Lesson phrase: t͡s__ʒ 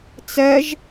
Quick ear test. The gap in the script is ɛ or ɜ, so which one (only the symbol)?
ɜ